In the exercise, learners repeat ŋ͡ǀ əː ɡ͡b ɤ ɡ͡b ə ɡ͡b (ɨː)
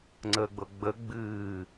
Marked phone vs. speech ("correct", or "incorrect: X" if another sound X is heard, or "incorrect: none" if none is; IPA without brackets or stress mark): correct